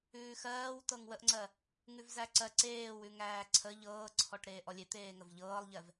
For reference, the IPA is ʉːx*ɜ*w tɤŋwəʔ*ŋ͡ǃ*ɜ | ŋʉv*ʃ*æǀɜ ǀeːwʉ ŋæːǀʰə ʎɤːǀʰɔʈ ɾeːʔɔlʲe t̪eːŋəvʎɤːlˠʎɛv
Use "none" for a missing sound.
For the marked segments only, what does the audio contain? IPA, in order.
ɜː, ŋ͡ǀ, z

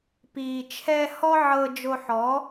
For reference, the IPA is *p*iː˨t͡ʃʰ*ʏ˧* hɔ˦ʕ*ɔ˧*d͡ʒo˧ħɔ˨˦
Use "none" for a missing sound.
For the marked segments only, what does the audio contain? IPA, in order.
p, ɛ˧, ɤ˧

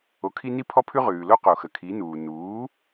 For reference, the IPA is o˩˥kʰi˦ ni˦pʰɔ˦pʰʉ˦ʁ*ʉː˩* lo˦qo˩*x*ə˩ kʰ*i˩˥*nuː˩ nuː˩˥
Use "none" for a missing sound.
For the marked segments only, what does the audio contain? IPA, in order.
ʉː˩, x, i˩˥

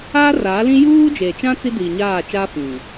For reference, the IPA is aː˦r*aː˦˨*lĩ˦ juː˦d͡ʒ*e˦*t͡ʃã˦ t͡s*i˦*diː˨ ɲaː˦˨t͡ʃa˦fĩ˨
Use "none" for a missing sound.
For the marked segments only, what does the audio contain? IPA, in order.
aː˨˦, e˨, i˦

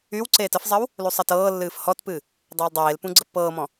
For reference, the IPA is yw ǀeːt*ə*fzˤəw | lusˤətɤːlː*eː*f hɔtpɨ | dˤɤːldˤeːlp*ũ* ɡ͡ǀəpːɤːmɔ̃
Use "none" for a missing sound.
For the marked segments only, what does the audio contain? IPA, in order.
ə, ɨː, ũ

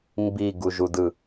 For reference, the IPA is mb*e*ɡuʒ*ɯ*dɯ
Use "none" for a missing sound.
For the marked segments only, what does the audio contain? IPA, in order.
i, u

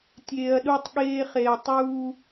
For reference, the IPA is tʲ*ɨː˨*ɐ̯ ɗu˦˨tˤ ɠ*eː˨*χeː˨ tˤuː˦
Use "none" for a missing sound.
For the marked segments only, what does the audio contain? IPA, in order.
eː˨, eː˦

